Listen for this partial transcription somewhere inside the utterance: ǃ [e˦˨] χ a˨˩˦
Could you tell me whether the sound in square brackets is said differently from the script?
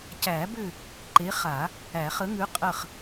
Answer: yes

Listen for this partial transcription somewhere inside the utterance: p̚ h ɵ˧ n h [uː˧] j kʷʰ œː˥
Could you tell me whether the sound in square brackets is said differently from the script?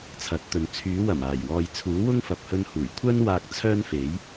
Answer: yes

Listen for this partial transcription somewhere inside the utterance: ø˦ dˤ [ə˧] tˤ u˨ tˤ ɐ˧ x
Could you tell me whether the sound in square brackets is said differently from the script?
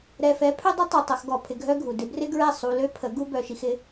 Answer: yes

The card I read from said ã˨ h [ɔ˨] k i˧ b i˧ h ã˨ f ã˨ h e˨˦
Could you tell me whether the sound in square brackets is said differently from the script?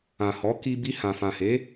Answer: yes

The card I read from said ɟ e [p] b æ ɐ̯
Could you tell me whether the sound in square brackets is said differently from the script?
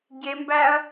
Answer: yes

